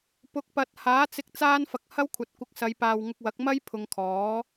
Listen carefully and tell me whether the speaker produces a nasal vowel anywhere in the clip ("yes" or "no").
no